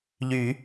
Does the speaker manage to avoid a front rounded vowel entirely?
no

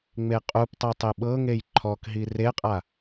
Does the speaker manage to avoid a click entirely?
no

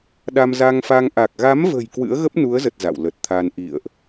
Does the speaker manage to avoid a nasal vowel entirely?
yes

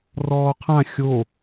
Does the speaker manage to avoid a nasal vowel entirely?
no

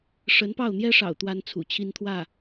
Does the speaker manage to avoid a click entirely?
yes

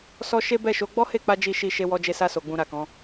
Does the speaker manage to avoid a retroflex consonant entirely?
yes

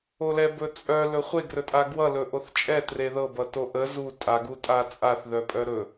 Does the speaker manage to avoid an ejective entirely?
no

